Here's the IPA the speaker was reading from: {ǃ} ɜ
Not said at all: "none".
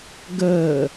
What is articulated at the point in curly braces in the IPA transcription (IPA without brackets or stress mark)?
ɡ